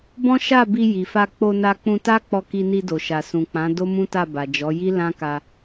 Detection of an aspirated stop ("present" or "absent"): absent